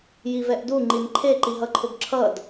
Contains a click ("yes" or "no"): yes